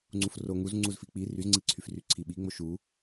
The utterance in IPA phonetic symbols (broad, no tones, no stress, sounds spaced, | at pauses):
ŋ͡ǀ u f r o ŋ u z ŋ͡ǀ u z f i k͡p i r y z ŋ͡ǀ i ǀʰ y f r y ǀʰ i ɓ i ŋ͡m o ʃ u